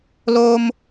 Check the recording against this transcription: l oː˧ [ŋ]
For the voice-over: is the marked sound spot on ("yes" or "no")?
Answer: no